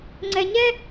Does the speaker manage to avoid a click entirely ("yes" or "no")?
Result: no